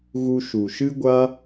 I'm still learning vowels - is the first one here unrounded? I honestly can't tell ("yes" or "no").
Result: no